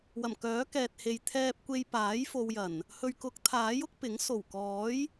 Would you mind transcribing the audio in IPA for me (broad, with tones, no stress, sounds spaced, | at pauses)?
w ɐ˨˩ m k œː˨˥ k ɛː˨ t̚ h e˨ j t̪ʰ ɛː˧ p̚ kʷ e˧ j p aː˨˥ j f o˧ w j ɐ˨˩ n | h ɵ˨ ɥ k ʊ˨˥ k̚ t̪ʰ aː˨˥ j ʊ˥ k̚ p ɪ˨˥ ŋ s o˨˩ w k ɔː˨˥ j